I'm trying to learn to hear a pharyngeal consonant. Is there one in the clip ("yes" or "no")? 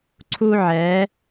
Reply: yes